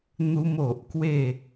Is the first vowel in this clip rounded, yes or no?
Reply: yes